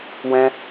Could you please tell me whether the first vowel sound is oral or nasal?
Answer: nasal